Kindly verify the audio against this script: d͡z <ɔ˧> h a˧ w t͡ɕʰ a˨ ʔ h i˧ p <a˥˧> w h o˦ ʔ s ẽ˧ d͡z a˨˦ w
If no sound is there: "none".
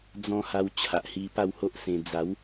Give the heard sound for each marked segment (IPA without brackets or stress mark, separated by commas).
ɔ̃˧, a˥˧